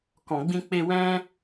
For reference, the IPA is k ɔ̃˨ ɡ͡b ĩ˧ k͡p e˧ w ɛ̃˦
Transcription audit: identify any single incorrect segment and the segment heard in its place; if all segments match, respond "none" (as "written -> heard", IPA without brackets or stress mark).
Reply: none